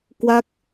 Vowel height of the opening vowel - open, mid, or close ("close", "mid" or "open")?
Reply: open